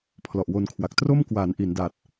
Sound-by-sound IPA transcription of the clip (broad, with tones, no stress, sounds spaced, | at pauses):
pʰ l ɔ˨˩ ʔ w o˧ n kʰ w a˨˩ k̚ t r o˥˩ m k w aː˩˦ n ʔ i˩˦ n d aː˨˩ t̚